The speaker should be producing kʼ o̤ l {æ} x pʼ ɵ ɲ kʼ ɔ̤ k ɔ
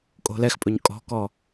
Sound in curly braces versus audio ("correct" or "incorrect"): incorrect